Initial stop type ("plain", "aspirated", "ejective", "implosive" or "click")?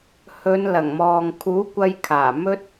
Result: aspirated